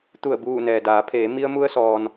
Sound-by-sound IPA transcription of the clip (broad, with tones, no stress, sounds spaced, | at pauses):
t̪ u˧˩ ə̯ b uː˧˩ n ɛː˩ d aː˩˧ pʰ eː˩˧ m i˧ ə̯ m u˧ ə̯ s ɔː˩ n